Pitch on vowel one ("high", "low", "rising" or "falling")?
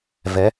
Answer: rising